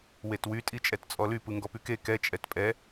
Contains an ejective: yes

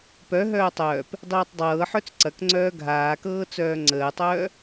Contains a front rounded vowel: yes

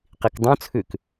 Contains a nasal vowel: yes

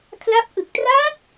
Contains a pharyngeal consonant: no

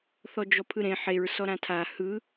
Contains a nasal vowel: yes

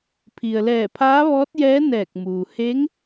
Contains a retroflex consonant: no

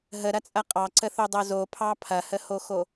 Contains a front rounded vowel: no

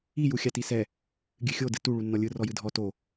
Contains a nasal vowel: no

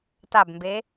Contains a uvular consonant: no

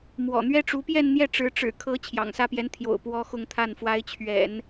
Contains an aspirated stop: yes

